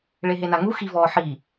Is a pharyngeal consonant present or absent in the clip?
present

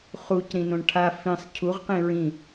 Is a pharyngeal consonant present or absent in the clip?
absent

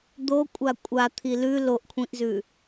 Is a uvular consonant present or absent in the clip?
absent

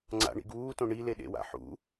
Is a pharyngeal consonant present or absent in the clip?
present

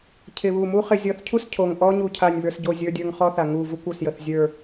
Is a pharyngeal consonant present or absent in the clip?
absent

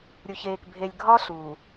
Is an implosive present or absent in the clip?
absent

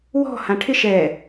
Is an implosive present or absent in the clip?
absent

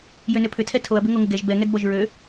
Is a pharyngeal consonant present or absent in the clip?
absent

